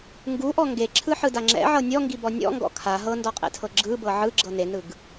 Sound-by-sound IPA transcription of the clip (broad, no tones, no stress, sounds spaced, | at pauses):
ŋ ɡ u ʔ ɔ ŋ ɡ e ǁʰ ɯ ħ ɯ d a ŋ͡ǁ ɛ̰ ʕ ɤ nʲ ɔ ŋ ɡ i b ɔ nʲ ɔ̰ ŋ ɡ ɔ̰ kʰ a ɦ ɤ n d ɔ qʼ ḛ tʰ ɤ ɡ͡ǁ ɯ b ɤ ʕ ɯ ɡ͡ǁ ɤ n e n ɯ ɡ